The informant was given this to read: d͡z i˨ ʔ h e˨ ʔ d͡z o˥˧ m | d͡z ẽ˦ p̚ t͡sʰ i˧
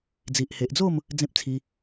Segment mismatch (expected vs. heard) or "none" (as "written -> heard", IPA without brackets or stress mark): none